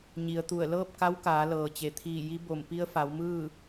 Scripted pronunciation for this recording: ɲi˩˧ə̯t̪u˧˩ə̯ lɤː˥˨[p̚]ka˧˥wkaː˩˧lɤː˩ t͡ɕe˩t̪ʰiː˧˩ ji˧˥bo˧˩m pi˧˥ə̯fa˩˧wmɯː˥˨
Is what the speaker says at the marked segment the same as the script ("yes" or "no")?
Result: yes